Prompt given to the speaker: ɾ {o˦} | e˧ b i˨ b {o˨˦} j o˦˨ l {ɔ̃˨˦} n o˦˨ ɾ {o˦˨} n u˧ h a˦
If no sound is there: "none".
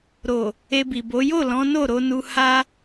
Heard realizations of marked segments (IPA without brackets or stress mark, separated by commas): o˨, o˨˦, ɔ̃˨˦, o˧